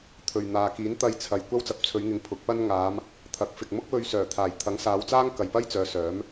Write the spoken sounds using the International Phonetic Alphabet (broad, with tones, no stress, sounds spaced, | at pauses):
t̪ʰ ɵ˧ ɥ n̪ aː˨ k iː˨˥ n t̪ ɐ˧ j t͡sʰ ɐ˨ j kʷ ɐ˥ w t͡s ɐ˨ p̚ t͡sʰ ɵ˨˧ ɥ ŋ ɪ˨ ŋ pʰ ʊ˨˥ k̚ p ɐ˥ n ŋ aː˨˧ m | t̪ʰ ɐ˨˥ k̚ f ɪ˨ k̚ m ʊ˥ k̚ w ɵ˧ ɥ s œː˨˩ t̪ʰ aː˨˩ j t̪ʰ ɐ˨˥ ŋ s aː˨˧ w t͡s aː˥ ŋ k ɐ˨ j p ɐ˥ j t͡s œː˨˧ s œː˨˥ m